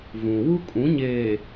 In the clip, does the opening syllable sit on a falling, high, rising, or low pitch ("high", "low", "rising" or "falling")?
low